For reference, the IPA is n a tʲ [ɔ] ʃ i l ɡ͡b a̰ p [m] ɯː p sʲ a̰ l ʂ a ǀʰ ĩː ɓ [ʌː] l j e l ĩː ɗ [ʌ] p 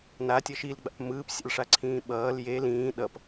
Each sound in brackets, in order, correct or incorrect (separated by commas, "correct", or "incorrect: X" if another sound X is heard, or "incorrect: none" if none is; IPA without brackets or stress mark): incorrect: ʌ, correct, correct, correct